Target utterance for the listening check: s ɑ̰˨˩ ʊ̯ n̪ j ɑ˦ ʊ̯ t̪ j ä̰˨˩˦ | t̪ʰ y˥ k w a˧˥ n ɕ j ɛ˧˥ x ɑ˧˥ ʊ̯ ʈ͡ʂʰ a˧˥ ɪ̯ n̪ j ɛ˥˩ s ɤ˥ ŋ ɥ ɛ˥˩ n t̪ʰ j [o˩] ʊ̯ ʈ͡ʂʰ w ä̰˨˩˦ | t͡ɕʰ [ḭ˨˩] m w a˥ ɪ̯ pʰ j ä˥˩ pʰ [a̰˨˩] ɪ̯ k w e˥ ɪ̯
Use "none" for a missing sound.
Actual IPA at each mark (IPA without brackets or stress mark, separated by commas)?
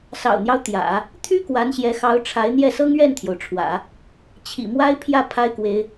o˩, ḭ˨˩, a˥